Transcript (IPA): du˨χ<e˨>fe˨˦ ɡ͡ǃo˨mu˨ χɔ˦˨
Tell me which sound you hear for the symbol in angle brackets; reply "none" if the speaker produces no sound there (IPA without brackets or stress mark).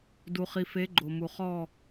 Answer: i˨